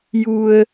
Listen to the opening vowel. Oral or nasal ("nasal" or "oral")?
oral